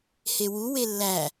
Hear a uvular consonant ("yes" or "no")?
no